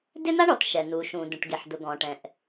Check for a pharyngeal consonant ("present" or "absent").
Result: present